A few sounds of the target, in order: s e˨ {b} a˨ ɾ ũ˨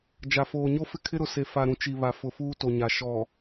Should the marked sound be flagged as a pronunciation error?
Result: yes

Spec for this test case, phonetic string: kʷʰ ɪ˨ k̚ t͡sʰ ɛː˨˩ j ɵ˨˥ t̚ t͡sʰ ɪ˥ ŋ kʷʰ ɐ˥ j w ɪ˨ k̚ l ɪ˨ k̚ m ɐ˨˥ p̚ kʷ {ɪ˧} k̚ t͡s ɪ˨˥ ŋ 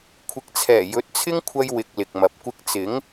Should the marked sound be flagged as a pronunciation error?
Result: no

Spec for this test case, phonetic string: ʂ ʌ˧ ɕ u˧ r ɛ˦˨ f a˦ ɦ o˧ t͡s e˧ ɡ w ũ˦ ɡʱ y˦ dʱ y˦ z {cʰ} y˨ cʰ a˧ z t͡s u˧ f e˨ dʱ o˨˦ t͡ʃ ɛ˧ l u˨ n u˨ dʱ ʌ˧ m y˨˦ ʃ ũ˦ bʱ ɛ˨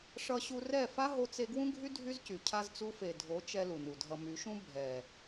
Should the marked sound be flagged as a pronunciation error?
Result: yes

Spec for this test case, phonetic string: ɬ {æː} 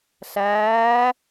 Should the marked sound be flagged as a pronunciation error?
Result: no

